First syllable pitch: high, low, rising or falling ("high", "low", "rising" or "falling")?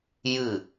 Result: falling